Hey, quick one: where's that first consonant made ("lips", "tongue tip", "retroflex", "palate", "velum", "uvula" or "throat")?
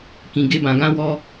velum